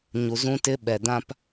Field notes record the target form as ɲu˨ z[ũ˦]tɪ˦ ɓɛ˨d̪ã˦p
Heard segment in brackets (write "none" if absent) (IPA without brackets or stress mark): ũ˦